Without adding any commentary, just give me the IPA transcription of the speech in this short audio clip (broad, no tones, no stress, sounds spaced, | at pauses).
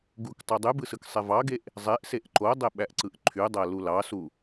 ɡ u k tˤ u dˤ y b ɯ s ɯ k sˤ e v ɑ ɡ e ʔ | zˤ e ʔ s e ʔ ǃ o dˤ e ɓ æ ʔ ǀ ɯ ʔ ǃʰ y dˤ æ l u l ɑ s u